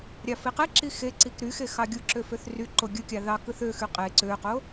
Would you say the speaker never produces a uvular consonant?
no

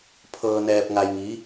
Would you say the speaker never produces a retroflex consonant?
yes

